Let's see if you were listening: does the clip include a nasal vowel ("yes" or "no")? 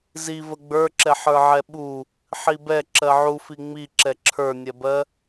no